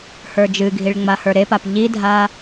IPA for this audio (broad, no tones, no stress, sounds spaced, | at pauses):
h ə˞ d͡ʒ ɨ ɡʱ i ɭ ŋ͡m a h ə˞ ɾ e p a p ʎ i dʱ a